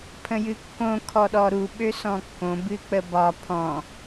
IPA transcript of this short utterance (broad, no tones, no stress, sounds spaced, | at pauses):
pʰ ə̃ j ɨ kː õ kʰ ɔ ɗ ɔ ɾ u ɓ ø s ɔ̃ kː õ b ɨ k͡p ə b ɒ pʰ ɔ̃